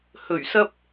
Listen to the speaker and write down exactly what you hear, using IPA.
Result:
h ɵ˨˩ ɥ s ɐ˧ p̚

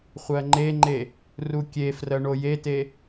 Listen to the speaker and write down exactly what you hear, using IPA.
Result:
χʷ ɜ ŋ͡ǃ e ŋ͡ǃ e | r u kʲ e f r ɜ ɳ o j e t e

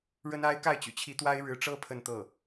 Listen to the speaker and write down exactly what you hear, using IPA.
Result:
ɻ ə˥ n a˥ ɪ̯ k a˥˩ ɪ̯ t͡ɕ y̰˨˩ t͡ɕʰ i˧˥ t̪ w a˥ ɪ̯ ɻ ɻ̩˧˥ ʈ͡ʂ ɤ˥ pʰ ə˥˧ n t̪ ɤ˥˩

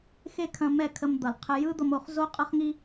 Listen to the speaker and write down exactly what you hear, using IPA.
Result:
x e˦ kʰ ɐ̃˧ m ɛ˦˨ kʰ ə˧ m d̪ ʌ˨ l qʰ ə˧ j ɯ˦ d̪ ʌ˧ m o˧ χ z o˦ qʼ ʌ˦ χ ŋ i˦

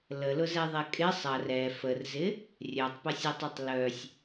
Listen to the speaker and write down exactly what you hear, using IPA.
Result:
l ə l ʊ z ɛ ðˤ ɛ kʼ ɪ sˤ ɐ r ɛ f ə r z ɪ | rʲ œ tˤ p ɐ sʲ ʊ tˤ ɐ tˤ l œ sʲ

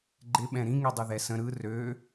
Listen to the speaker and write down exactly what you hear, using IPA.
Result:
ɡ͡ǃ ɪ ɓ ɛ̃ ɾ ĩ ŋ i dˤ ɯ ð ɛ s ə̃ ɾ ɯ r ø

